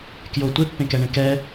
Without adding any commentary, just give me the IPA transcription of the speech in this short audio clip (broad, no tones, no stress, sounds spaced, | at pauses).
k j o tʷ e pː ẽ k ɛ ɳ ẽ k ɛ